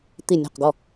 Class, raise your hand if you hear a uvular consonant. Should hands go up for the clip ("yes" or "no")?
yes